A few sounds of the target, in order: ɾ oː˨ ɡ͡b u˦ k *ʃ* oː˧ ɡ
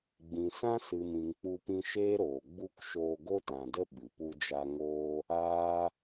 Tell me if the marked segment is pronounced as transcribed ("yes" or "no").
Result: yes